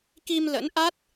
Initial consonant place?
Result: velar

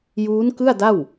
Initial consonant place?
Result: palatal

